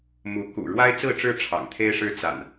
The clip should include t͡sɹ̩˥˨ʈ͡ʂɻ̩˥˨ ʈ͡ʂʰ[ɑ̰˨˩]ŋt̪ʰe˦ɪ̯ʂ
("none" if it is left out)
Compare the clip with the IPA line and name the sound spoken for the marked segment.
ɑ̰˨˩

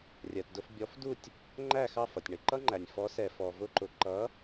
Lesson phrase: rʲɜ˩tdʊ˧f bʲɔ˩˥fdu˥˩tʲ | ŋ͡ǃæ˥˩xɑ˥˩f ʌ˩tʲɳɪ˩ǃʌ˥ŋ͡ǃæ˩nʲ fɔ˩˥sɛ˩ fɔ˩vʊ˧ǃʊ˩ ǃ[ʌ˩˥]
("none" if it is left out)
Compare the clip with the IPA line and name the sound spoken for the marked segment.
ʌ˩˥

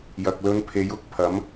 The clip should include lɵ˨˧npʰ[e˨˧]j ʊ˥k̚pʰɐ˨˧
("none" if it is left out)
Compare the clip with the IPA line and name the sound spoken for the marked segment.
e˨˧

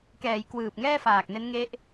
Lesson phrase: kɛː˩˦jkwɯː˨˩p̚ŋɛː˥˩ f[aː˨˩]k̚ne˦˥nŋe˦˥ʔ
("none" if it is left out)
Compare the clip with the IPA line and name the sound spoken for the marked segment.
aː˨˩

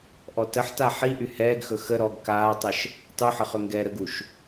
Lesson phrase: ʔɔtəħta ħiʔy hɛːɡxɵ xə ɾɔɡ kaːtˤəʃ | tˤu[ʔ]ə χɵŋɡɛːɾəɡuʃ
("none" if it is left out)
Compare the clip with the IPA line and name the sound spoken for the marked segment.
ħ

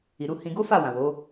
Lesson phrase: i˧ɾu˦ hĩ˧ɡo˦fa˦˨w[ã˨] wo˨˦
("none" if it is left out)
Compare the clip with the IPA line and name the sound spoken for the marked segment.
ã˨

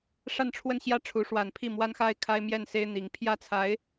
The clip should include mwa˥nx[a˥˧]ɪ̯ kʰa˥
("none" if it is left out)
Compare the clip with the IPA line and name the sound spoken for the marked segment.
a˥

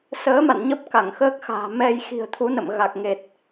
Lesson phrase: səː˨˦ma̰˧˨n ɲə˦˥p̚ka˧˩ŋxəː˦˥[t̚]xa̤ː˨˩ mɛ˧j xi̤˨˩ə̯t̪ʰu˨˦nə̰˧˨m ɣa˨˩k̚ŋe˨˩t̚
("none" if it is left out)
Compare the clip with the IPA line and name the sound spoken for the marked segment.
k̚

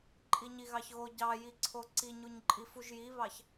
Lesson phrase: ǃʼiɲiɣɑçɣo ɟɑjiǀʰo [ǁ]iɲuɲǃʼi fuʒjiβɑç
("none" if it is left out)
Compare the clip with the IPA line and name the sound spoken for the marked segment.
ǀ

